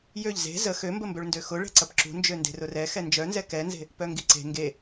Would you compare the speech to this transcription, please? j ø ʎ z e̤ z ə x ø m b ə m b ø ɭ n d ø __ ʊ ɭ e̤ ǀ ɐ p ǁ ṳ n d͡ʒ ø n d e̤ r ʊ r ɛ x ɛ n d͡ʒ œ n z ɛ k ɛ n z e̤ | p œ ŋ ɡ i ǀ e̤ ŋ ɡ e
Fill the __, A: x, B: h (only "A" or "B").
A